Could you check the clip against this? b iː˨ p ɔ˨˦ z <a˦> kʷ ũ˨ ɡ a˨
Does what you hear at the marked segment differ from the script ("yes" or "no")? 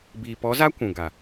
no